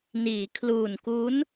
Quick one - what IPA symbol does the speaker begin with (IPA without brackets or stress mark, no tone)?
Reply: n